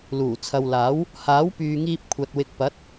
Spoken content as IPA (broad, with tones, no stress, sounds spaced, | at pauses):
l uː˨˩ t͡sʰ ɐ˨ w l aː˨˥ w | h aː˨˥ w p yː˨ ŋ iː˧ p̚ kʷʰ ɐ˨ t̚ w ɪ˨ k̚ p ɐ˨˥ t̚